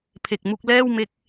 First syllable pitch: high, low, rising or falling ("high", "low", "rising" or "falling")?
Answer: low